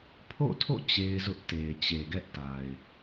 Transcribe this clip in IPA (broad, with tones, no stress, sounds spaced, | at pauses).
pʰ o̰˦˨ tʰ o̰˦˨ t͡ɕ e˦ ɪ̯ z ʊ˦ ʔ t e˨ ɪ̯ t͡ɕ e˨ ɡ ɛ˦ ʔ t a˨ ɪ̯